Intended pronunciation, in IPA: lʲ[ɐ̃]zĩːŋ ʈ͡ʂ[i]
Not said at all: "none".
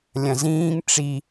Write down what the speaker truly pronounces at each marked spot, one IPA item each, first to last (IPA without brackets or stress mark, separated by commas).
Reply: ɐ̃, i